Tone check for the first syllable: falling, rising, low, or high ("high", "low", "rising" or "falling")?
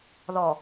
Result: low